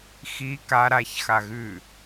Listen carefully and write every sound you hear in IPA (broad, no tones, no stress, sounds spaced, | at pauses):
x i k a ɾ a ç x a ɣ ʉ